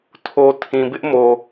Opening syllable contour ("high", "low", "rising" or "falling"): low